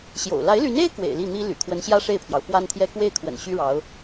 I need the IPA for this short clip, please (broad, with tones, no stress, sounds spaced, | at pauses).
ɕ j o̰˨˩ ʊ̯ l a˧˥ ɪ̯ l y˧˥ n e˥ ɪ̯ k w ḛ˨˩ ɪ̯ l i˥˩ n̪ i˥ l y̰˨˩ kʰ w ə˧˥ n ɕ j ä˥ ʂ e˥˩ ɪ̯ pʰ j ɑ˩ ʊ̯ f w a˥ n t̪ʰ j ɛ˥ k w e˥˩ ɪ̯ kʰ w ə̰˨˩ n ɕ y˥ ɻ ɑ˧˥ ʊ̯